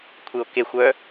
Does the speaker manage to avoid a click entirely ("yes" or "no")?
yes